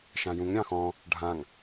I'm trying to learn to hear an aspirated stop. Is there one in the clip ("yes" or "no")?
no